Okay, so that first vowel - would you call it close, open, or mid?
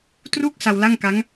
close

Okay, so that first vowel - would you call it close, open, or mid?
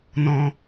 mid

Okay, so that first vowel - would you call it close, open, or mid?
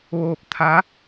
mid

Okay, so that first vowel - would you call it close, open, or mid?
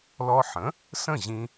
mid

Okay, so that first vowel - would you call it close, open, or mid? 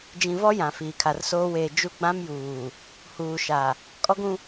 close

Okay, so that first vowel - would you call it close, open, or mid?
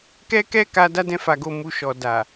mid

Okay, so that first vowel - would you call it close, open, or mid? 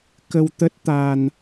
mid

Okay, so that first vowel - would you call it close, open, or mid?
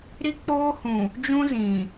close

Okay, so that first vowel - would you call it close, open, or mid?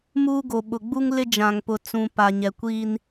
close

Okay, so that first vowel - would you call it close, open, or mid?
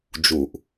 close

